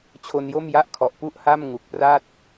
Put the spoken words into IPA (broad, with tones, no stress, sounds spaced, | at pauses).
t͡ɕʰ o˧ n j o˥˩ m j a˥˩ ʔ kʰ ɔ˨˩ ʔ p u˥˩ ʔ h a˥˩ m ŋ u˨˩ k̚ p r a˥˩ t̚